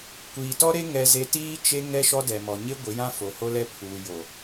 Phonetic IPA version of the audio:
kʷ iː˨ t ɔ˦ ɾ e˦ ŋ ɛ˦ z e˦ t iː˦ t͡ʃ e˦ ŋ ɛ˦ ʃ ɔ˦ d ɛ˨ m ɔ˨ ɲ ɪ˦ ɡʷ ɪ˨˦ j ã˦ f o˨ h o˦ l ɛ˦ pʰ uː˨ j o˨

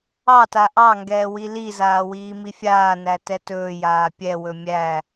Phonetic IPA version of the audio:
ɑ t a ʔ ɑ ŋ ɡ ɛː w i l i z aː w iː m i fʲ aː n æ t ɛ t ɵː j aː pʲ ɛ w ɵ mʲ æ

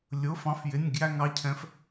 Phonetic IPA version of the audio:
lʲ ʊ˩˧˩ f ɑ̃˨˥ f j ɪ˩˧˩ nʲ ɡ j æ˥˧ ŋ ɑ˩˧˩ cʰ ɛ̃˨˥ f

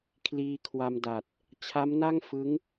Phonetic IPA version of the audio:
kʰ l iː˧ kʰ w a˧ m d a˨˩ t̚ | t͡ɕʰ a˦˥ m n a˥˩ ŋ f ɯ˦˥ ŋ

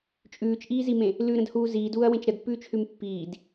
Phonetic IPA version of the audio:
t͡ʃʼ ʉː t͡ʃ ʔ iː z i m ẽ | l ʉ ɾ ə̃ d h uː z iː d uː ɐ̯ w ẽ t͡ʃ ɾ ə d pː ʉː t͡ʃ h ʉ m pː iː d

